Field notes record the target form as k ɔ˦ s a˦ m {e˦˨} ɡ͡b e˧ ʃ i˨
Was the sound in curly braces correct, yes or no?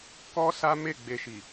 yes